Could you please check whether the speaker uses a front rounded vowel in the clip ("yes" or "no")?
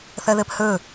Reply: yes